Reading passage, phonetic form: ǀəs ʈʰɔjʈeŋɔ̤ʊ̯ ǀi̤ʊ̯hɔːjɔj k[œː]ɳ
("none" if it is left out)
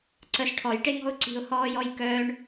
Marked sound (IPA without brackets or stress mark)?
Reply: œː